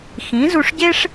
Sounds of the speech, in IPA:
x ĩ˩˥ z u˧ ʂ ɟ e˥ ʂ

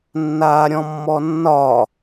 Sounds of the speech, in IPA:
nː aː ɾʲ ɔ̃ mː ɔ nː ɒ

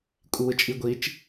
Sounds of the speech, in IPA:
kʷʼ i w ɯ t͡ʃʼ i ɡʷ i t͡ʃ

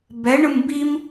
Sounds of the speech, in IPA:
b ɛ ɳ ɯ m b i m

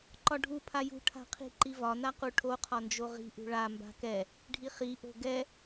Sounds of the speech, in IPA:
ǃ ɒ ɖʱ u pʰ a j ṳ ʈʰ a̤ qʰ i̤ ǃ i v ɒ n a q u ʈʰ o qʰ ɒ n d͡ʒ o ʁ i̤ ʔ ṳ ɭ a m b a̤ k ɛ | ɖʱ i χ i ʔ o̤ ɡ ɛ

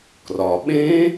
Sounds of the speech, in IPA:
k r ɒ˩ ɓ ẽ˦˥

